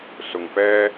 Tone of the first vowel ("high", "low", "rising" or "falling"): low